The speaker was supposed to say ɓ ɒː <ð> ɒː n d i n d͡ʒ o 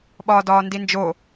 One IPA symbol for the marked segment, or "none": d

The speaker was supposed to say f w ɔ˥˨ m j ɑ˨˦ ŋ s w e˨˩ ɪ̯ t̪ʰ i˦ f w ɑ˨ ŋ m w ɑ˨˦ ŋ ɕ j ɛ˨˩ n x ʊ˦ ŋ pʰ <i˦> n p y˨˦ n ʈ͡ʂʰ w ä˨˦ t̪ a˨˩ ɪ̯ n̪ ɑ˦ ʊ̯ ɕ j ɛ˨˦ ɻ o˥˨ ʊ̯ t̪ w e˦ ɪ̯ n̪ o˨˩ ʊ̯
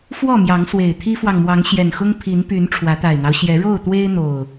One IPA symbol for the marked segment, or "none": i˨˦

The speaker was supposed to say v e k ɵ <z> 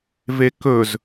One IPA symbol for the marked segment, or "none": z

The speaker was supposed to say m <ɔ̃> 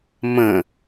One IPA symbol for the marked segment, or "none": ə̃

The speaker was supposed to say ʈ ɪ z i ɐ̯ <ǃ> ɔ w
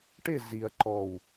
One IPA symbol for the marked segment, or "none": ǃ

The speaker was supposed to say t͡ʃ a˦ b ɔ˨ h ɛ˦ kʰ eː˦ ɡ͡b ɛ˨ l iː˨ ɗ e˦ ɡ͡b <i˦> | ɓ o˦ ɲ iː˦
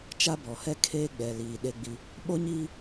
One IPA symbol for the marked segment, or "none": i˦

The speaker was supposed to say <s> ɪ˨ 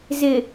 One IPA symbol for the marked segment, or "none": z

